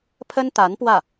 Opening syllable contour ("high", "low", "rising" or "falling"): high